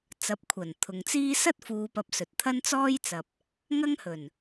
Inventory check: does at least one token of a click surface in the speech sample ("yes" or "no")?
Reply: no